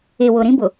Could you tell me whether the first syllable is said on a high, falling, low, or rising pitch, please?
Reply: low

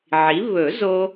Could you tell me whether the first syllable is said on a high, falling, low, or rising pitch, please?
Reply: rising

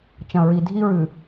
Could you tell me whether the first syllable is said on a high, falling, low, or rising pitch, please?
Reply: low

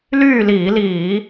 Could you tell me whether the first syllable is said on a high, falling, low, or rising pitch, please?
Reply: falling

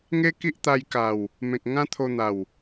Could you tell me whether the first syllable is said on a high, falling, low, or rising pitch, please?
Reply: high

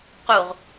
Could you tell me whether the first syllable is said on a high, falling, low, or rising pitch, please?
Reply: low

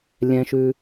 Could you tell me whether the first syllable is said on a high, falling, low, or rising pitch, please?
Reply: low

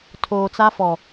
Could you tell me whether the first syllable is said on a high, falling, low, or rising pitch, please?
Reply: low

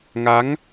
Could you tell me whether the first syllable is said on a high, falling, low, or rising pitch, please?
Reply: rising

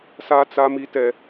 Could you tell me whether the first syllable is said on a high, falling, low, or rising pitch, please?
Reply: high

